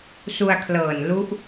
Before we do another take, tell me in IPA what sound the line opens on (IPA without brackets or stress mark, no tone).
s